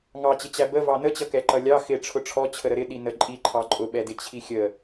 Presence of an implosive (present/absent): present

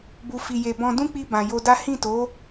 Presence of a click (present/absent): absent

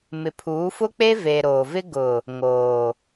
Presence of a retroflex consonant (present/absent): absent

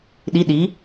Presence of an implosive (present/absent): present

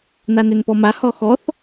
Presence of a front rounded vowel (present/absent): present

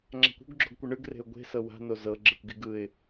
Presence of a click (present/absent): present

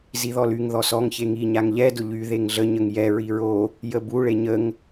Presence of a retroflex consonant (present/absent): present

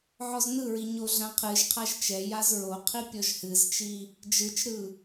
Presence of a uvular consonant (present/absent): present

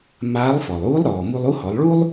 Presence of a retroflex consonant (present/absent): present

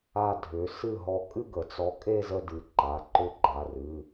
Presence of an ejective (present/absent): present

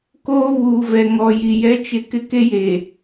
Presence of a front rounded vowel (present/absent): absent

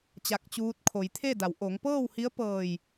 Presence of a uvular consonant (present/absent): absent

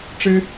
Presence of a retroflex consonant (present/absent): present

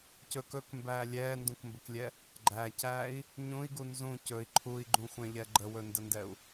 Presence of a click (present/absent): present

